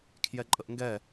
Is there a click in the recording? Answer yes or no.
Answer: yes